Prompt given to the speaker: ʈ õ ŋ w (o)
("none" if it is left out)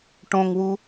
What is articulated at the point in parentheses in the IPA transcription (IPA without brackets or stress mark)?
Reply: u